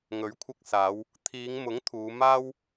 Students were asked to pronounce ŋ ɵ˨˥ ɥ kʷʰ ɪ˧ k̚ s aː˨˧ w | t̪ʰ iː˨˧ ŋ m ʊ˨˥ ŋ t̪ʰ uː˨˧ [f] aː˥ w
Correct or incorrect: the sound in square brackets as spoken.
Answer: incorrect: m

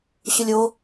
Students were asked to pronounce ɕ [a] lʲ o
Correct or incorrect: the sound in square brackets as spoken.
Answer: incorrect: ə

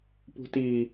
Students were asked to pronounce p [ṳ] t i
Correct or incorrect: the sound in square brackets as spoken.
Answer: correct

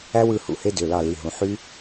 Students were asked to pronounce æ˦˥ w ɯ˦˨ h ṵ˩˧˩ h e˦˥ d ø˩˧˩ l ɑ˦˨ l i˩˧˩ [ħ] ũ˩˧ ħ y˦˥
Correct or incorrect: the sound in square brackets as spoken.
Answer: incorrect: ɦ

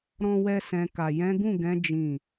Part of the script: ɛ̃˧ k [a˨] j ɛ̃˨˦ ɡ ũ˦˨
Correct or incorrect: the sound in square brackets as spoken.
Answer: correct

